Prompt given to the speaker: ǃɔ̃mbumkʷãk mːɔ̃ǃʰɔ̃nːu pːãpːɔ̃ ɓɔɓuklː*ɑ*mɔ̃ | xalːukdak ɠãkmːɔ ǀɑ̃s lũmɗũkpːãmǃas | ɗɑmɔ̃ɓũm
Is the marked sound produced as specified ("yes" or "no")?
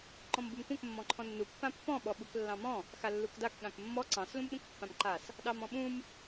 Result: no